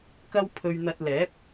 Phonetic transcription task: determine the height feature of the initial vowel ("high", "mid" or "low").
low